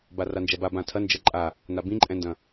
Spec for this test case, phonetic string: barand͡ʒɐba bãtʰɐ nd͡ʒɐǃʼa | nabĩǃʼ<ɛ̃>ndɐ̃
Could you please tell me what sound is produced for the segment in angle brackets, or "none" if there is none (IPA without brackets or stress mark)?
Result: ɛ̃